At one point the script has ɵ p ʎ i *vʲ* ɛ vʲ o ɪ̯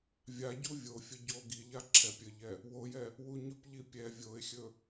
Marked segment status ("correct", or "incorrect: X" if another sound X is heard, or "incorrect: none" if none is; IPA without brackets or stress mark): incorrect: pʲ